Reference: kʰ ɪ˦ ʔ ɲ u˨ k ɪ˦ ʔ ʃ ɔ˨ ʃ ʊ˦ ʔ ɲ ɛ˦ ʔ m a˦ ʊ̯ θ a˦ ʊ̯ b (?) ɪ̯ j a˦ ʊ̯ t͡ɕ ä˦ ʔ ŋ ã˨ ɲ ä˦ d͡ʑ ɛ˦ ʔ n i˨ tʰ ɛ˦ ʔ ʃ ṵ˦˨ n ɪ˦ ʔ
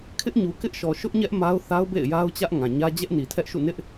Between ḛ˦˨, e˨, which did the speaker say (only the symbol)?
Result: ḛ˦˨